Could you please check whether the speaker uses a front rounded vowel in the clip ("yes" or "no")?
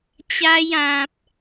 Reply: no